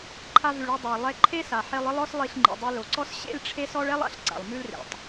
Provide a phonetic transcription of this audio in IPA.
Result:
ǃʰa˧vʉ˩ɭe˧ dˤa˩lˠɛ˧ ǃʰe˥sa˩ ħe˧lˠ ɪ˥lˠɔ˥s lˠi˧ɬŋ͡ǃḭ˩dˤi˧ lo˩ǀɔ˥s ɕḛ˥lʈ͡ʂʰe˥s ɔ˥ɭɛ˥lˠa̰˩ɬ ǀa̰˩lˠmʉ˥l rḛ˩tˤ

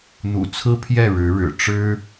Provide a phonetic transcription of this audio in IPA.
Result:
n̪ṵ˨˩ t͡sʰɹ̩˥pʰjɛ˥˩ ɻɻ̩˧˥ɻɻ̩˨˩ ʈ͡ʂɻ̩˥

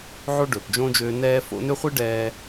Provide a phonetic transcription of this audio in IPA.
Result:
ʕo˥ɖɵː˩pd͡ʒõː˥d͡ʒøː˦ nɛː˦ fo̰˦nø˥χʷi˥ ɖɛː˦

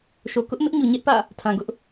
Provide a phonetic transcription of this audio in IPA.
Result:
ʃo˨kʊ˦ʔmɪ˦ʔ ɲu˨ɲɛ˦ʔpä̰˦˨ | tʰã˨ɡʊ˦ʔ

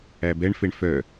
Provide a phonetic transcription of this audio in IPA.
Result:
æbɛɳfeɳ fœ

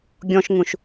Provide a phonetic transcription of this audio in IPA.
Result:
ɡʲɔ̃ʃŋũʃ

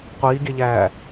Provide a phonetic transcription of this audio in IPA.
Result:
qʷiːɡʲɛʎæː

